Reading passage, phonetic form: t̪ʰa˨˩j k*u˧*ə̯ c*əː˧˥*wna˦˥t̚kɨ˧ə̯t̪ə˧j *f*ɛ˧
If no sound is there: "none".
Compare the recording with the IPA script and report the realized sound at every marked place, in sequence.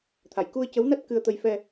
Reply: u˧, ə˧˥, f

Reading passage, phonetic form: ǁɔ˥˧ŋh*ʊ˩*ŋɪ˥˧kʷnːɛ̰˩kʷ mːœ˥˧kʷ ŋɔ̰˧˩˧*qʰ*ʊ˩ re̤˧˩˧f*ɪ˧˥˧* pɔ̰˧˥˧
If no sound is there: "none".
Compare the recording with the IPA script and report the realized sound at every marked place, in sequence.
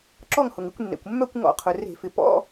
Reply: ʊ˩, qʰ, ɪ˩

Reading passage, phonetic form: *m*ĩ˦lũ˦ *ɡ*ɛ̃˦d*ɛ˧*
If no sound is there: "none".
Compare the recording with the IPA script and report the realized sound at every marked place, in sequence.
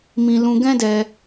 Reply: m, ɡ, ɛ˧

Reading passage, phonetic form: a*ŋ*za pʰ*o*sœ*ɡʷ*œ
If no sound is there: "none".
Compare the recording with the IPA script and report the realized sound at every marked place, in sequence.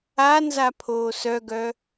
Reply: n, oː, ɡ

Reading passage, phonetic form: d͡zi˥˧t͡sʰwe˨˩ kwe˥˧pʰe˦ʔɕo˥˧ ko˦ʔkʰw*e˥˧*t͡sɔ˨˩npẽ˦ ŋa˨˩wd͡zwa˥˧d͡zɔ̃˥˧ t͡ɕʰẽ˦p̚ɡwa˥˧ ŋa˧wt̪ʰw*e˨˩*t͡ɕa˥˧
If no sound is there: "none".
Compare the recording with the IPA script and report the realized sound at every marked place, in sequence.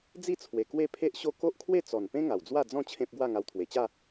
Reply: e˥˧, e˨˩

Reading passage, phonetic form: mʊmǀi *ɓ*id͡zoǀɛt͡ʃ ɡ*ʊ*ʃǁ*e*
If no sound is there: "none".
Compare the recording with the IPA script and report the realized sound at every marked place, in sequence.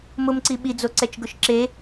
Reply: ɓ, ʊ, e

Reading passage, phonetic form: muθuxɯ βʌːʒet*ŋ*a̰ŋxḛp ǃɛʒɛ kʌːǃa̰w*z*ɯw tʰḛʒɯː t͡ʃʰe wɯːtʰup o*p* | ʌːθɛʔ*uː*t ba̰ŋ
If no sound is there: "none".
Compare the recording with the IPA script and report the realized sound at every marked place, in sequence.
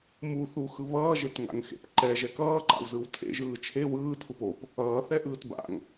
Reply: ŋ, z, p, ɯː

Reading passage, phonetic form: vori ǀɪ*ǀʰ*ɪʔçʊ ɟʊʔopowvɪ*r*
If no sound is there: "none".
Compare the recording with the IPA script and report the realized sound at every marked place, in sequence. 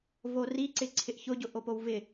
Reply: ǀʰ, none

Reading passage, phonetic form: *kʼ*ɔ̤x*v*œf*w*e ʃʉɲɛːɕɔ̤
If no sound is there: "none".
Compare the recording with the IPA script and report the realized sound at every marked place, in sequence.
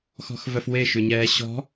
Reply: x, v, w

